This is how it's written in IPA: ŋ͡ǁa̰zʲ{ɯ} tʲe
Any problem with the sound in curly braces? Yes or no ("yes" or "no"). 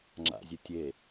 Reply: no